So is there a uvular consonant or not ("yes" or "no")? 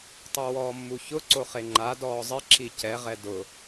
yes